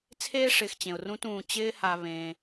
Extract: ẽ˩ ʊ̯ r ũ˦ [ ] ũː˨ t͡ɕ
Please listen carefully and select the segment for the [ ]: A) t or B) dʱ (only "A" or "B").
A